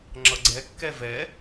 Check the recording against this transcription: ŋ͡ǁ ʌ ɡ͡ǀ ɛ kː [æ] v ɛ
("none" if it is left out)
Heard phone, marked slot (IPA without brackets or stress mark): ɛ